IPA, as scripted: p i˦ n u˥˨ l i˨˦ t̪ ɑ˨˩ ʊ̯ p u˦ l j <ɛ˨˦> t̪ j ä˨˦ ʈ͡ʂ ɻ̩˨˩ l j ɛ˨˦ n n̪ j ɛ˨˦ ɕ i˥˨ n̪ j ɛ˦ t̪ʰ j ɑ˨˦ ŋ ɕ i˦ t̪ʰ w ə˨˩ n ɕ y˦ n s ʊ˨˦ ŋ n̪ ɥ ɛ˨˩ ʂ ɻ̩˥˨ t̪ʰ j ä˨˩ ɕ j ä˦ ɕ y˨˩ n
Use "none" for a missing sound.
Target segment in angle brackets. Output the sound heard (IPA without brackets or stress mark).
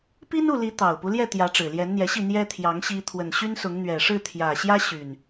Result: ɛ˥˨